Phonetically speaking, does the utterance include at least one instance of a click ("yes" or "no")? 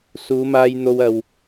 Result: no